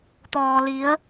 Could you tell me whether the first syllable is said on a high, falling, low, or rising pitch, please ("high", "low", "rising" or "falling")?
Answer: low